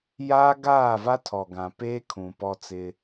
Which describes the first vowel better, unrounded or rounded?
unrounded